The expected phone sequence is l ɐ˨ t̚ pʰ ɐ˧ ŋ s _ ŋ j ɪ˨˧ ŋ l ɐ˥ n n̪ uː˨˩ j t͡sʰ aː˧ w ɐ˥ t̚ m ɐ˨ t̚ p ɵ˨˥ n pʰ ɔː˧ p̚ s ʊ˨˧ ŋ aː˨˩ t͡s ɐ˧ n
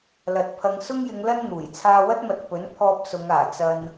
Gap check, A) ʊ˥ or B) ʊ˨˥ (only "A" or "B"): A